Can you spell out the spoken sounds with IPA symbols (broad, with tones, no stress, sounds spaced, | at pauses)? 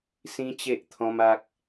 s ĩ˦ t͡ɕ e˦ ʔ t̪ʰ ɔ̃˦ m a˦ k̚